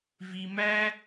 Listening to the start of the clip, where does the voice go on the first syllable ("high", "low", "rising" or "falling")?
high